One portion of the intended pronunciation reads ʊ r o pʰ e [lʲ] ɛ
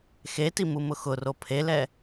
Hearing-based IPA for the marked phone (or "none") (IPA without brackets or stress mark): l